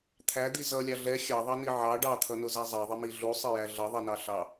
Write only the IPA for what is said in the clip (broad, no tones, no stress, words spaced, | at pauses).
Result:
t̪ʰæd̪i zʌlʲɑ ɮɛ xʲɑðˤɑni ʕɑ ɖɑt̪ʰʌnʊzæ zˤɛðˤɪmi ɮusˤɪjæ ɮʌðˤɛnɑ ɬɑ